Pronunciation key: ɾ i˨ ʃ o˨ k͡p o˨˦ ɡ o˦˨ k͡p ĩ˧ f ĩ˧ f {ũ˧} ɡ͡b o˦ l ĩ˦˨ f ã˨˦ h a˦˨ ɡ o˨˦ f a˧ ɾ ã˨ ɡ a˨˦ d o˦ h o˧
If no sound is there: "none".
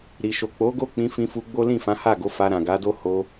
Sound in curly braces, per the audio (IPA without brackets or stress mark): u˧